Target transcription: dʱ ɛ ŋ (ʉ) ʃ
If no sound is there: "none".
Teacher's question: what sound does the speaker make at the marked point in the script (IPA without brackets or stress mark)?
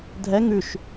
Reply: ʉ